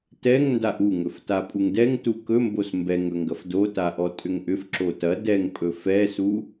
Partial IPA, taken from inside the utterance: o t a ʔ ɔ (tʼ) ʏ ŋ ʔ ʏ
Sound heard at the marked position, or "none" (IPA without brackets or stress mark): tʼ